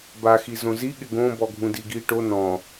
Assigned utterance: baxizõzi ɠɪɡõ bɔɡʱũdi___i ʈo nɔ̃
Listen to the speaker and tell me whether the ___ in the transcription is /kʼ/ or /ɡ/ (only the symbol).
ɡ